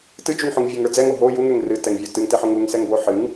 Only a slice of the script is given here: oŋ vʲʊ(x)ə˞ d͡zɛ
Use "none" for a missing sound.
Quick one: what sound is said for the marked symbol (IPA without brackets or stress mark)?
ŋ